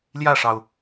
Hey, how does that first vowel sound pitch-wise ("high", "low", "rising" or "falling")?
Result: falling